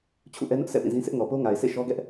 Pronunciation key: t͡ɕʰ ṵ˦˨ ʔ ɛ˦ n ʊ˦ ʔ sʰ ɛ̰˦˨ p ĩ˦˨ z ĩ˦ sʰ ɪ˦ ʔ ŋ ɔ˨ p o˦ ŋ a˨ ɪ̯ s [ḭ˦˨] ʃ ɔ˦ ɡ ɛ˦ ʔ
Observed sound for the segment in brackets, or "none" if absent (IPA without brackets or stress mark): ḛ˦˨